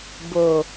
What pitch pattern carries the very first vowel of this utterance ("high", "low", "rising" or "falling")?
low